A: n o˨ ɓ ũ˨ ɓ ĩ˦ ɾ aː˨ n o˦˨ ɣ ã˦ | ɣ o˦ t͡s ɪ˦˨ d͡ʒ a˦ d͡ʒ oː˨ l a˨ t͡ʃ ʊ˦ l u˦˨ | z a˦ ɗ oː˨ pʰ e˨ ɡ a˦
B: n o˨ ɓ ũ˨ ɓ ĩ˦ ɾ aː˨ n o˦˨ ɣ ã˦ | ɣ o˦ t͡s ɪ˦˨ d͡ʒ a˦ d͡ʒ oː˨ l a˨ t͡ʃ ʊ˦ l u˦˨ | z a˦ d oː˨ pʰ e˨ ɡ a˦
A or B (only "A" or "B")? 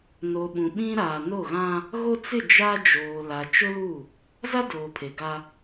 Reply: B